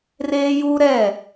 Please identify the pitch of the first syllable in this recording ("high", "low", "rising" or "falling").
high